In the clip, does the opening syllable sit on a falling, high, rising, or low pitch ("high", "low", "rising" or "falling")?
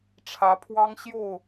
rising